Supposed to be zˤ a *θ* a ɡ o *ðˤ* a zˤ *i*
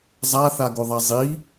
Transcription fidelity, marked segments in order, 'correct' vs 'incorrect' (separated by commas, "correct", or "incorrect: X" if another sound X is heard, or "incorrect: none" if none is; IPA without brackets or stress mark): correct, correct, correct